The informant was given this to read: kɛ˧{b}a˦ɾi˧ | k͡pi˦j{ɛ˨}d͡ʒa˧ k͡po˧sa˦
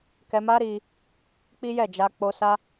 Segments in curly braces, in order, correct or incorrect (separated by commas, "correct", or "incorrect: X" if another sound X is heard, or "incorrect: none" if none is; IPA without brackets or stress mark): incorrect: m, incorrect: ɛ˦˨